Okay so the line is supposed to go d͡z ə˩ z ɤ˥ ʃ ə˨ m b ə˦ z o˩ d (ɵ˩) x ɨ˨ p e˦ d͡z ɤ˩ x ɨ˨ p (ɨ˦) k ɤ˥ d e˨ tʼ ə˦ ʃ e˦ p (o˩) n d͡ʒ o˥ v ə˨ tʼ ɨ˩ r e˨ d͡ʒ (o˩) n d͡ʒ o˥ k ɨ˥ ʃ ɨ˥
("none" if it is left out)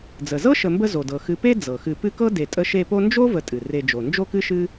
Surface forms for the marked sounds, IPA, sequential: ɤ˩, ɨ˦, o˥, o˩

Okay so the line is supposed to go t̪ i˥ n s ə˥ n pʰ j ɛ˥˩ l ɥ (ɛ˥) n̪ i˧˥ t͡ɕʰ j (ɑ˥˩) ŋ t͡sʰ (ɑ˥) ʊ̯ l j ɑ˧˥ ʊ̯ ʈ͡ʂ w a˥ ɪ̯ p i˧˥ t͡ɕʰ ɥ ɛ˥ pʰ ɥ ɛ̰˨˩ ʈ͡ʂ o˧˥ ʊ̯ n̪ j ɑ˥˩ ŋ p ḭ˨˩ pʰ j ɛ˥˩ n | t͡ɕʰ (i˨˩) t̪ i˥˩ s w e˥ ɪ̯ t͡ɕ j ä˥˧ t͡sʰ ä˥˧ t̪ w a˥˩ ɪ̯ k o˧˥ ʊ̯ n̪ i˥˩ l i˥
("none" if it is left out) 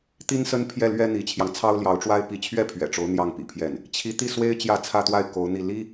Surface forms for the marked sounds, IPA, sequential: ɛ˥, ɑ˧, ɑ˥, i˧˥

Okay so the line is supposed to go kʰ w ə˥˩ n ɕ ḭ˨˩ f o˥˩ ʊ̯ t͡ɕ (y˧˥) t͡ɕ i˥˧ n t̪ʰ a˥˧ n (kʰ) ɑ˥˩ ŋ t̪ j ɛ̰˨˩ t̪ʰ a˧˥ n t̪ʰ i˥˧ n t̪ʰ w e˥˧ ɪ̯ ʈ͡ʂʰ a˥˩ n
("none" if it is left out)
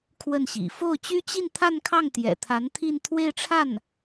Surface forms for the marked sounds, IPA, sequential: y˥, kʰ

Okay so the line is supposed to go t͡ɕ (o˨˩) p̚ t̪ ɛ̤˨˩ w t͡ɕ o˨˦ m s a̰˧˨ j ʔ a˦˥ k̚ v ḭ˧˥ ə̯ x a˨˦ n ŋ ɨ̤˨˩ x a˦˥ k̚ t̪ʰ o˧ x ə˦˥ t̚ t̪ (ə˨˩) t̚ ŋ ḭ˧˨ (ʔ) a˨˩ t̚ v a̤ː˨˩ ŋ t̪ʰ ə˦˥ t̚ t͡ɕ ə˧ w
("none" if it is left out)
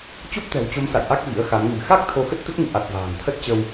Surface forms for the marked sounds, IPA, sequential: o˦˥, ə˦˥, ʔ

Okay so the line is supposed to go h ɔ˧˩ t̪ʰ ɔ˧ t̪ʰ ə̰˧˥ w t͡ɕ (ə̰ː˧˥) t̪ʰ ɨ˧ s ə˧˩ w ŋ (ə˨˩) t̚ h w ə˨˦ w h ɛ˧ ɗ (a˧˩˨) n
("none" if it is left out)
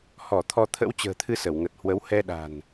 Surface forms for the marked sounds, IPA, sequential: ə̤ː˨˩, ə˨˩, a̤˨˩

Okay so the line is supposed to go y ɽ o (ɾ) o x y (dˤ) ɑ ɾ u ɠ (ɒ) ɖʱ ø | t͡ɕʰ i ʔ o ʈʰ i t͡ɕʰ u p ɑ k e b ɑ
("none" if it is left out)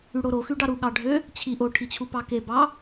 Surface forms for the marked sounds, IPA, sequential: ɾ, ɖ, ɑ

